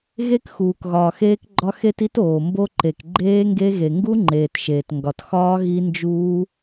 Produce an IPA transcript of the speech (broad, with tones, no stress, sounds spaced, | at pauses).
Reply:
ɣ e˦˥ k x uː˩ k ɣ ɒː˩ x eː˦˥ k ɡ͡ǃ ɒ˦˥ x e˦˥ t i˦˥ t oː˩ m b o˦˥ ǃ e˩ k ɡ͡ǃ eː˦˥ ŋ ɡ e˦˥ ɣ e˩ ŋ ɡ u˦˥ ŋ͡ǃ eː˩ t ʃ eː˩ t ŋ ɡ ɒ˩ t x ɒː˦˥ ɣ i˦˥ n d͡ʒ uː˦˥